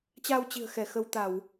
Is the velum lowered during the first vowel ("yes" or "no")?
no